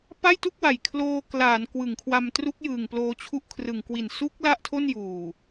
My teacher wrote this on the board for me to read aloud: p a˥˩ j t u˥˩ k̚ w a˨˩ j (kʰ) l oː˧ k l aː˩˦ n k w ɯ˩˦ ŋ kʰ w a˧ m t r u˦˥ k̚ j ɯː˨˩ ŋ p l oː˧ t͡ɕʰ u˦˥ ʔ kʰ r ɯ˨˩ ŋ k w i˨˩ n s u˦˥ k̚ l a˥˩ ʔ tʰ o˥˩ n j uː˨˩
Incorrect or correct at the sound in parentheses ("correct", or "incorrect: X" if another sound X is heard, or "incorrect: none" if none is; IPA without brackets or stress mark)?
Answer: correct